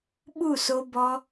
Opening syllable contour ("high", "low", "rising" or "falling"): falling